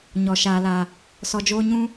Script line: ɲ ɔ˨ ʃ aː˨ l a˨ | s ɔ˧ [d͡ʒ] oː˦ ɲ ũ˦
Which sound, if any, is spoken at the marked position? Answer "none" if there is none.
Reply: d͡ʒ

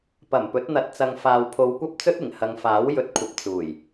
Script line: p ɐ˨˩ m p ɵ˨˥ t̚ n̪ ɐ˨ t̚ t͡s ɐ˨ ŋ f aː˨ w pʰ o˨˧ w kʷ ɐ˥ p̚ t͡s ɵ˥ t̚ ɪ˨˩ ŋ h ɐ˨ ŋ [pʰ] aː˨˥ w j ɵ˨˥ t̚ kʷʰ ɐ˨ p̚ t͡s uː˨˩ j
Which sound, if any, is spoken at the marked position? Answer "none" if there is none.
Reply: f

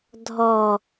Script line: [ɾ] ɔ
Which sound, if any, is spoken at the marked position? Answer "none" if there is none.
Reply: dʱ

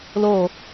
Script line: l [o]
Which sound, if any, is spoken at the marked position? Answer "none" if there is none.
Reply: o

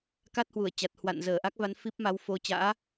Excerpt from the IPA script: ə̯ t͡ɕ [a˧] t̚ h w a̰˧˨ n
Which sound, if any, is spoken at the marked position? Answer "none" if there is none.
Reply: a˨˩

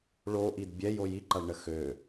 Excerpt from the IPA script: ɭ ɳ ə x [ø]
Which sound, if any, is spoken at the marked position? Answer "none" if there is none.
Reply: ø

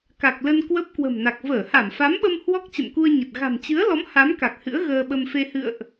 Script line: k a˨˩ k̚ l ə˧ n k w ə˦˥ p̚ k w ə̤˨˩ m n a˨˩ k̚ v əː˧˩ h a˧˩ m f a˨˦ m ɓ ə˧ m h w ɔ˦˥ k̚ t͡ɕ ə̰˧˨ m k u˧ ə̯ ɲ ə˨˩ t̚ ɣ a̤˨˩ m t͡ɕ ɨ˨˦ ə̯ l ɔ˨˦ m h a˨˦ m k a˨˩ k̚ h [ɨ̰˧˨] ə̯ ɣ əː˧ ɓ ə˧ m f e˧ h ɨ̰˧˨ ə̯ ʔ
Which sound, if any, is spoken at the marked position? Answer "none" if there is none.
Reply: ɨ̰˧˥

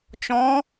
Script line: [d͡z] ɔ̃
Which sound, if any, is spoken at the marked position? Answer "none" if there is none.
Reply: t͡ʃ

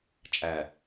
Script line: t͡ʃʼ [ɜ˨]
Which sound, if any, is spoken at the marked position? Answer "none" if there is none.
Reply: æ˨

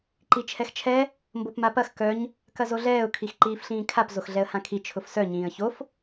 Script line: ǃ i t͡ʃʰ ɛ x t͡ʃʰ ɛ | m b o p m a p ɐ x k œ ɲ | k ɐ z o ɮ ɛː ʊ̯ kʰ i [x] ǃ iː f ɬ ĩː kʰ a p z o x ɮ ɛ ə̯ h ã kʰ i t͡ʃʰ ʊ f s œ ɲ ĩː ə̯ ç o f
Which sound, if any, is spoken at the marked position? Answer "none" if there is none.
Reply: x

